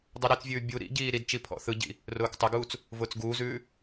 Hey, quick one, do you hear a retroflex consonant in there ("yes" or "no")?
no